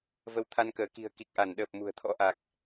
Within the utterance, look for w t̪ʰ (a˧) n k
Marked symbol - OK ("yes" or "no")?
yes